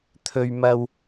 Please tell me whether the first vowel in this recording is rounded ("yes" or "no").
yes